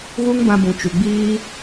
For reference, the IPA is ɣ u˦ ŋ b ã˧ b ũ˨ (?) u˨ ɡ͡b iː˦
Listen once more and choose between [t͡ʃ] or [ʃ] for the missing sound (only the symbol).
t͡ʃ